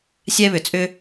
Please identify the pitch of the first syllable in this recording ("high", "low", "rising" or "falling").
high